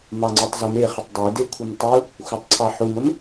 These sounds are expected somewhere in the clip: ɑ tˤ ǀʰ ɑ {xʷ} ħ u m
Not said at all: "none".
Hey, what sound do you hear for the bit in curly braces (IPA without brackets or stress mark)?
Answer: none